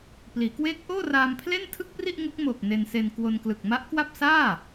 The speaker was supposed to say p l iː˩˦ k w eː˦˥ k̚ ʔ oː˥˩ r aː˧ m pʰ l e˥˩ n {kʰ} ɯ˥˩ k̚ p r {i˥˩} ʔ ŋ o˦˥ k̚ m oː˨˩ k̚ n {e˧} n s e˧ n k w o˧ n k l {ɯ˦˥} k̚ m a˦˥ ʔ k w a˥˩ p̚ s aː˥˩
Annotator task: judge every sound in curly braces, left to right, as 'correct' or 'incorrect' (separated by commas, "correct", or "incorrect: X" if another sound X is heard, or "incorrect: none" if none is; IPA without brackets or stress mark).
incorrect: tʰ, correct, correct, incorrect: ɯ˨˩